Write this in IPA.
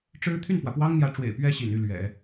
ʈ͡ʂ ɻ̩˥ t̪ʰ y˥˩ n f w ä˩ p w ɑ˥ ŋ n̪ j ä˧˥ ʈ͡ʂ w ḛ˨˩ ɪ̯ p ɥ ɛ˥˩ ɕ ḭ˨˩ n y˥˩ l ɥ ɛ̰˨˩˦

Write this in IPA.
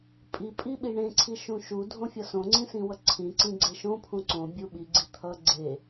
pʼ i pʼ i ɓ i ɳ ẽ ǀʰ i ʃ ũ ʃ u dʱ õ fʲ ʌ s õ ŋ͡ǀ ĩ s ĩ w ʌ ǀʰ ĩ ǀ ĩ ɡ͡ǀ e ʃ õ pʰ ũ ǀ õ bʲ u ɓ i ɡ͡ǀ i t̪ʰ ʌ ɡ͡ǀ e

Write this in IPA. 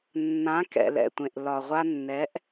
nː ã˩˥ k ɛ̰˩ l ɛ̰˩ tʷ ẽ˩ ʔ l ɒ˩ ʁʷ a˧ nː ɛ˩˥ ʔ

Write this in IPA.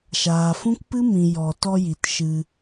ʃ aː˨ f ũ˦ k p ɨ˦ m ĩ˨ j ɔ˨ t ɔ˧ j i˨ t ʃ ɨ˧

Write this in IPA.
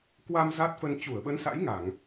k w a˧ m z a˦˥ t̚ f ə˧ n t͡ɕ u˧˩ ə̯ ɓ ə˨˦ n s a̰˧˥ j ŋ a˧˩˨ ŋ

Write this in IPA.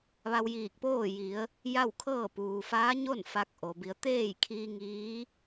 ʋ a˧ w j iː˧˩ k̚ p oː˥˨ j i˩˧ ə̯ | j a˥˨ w kʰ ɤː˥˨ p uː˩ f aː˧˥ ɲ o˥˨ n f a˧ k̚ ʔ o˩ b i˩˧ ə̯ t̪ eː˥˨ j kʰ iː˧ ŋ iː˧˥

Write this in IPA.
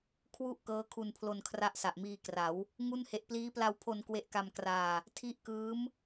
kʰ w u˦˥ ʔ k ɤː˦˥ kʰ u˧ n pʰ l o˧ n kʰ r a˦˥ ʔ s a˨˩ ʔ m iː˧ k r a˩˦ w | ŋ u˥˩ n h e˦˥ ʔ p l iː˦˥ p l a˧ w pʰ o˧ n k w e˦˥ ʔ k a˧ m k r aː˧ | tʰ i˦˥ ʔ k ɯː˦˥ m

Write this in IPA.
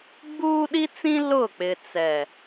ɡ͡b uː˦ ɗ i˦ t͡s ĩ˦ l ʊ˦˨ k͡p ɪ˨ t͡s ɛ˨

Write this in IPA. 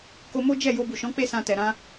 k o˧ m o˦ d͡ʒ ɛ˦˨ j o˧ b u˨ ʃ ɔ̃˨˦ k͡p e˦ s ã˧ t ɛ˨ ɾ ã˧

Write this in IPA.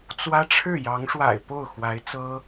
t͡s w ä˥ ʈ͡ʂʰ ɻ̩˥˩ j ɑ˧˥ ŋ ʂ w a̰˨˩ ɪ̯ p o˥˩ ʊ̯ x w a˧˥ ɪ̯ t͡s ɤ˥

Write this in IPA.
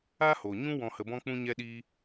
a˦ h o˨ ɲ ũ˦ w ɔ̃˧ h ə˧ b ɔ̃˦ k͡p ũ˦ ɲ ɛ˦ ɗ iː˦

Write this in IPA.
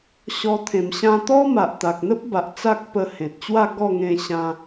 ɕ ɔ˧ t̪ʰ ẽ˨˩ m ɕ ã˧ t̪ ɔ˦ m a˨ ʔ t̪ a˨ k̚ n̪ ə˦ p̚ b a˨ ʔ t͡s a˦ k̚ p ə˧ h ẽ˨ t̚ t͡ɕ w a˥˧ ɡ ɔ˥˧ ŋ ẽ˧ ɕ ã˧

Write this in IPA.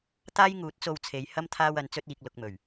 t̪ aː˥ j ŋ uː˨˥ t̚ t͡s o˧ w t͡sʰ e˨˧ j h ɐ˥ m t̪ʰ aː˥ w ɐ˨˥ n t͡s ɵ˥ t̚ iː˧ k̚ l ʊ˧ k̚ m ɵ˨˩ ɥ

